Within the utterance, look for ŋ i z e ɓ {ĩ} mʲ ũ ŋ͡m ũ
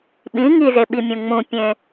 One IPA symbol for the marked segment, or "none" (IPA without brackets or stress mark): i